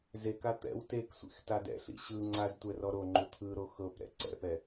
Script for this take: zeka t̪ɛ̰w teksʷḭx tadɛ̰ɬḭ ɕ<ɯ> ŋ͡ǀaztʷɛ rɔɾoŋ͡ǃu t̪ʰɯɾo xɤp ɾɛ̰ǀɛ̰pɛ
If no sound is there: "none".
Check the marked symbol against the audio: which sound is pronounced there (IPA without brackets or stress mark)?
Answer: ɯ